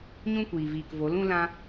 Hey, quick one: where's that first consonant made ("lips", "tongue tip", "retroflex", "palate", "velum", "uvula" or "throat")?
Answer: palate